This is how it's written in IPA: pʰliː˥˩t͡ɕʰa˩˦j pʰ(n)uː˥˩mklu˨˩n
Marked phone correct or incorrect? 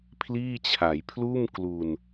incorrect